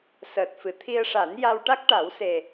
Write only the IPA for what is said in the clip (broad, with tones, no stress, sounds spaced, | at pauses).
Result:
s əː˨˩ t̚ f ɨ˨˩˨ t̪ʰ i˧ ə̯ ʂ a˨˩˦ n j a˧ w ʈ a˦˥ k̚ ʈ a˨˩˦ w s e˨˩